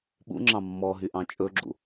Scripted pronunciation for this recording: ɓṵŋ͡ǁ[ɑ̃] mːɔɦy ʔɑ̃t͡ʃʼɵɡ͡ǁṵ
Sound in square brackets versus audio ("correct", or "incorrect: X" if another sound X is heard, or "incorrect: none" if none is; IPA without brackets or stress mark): correct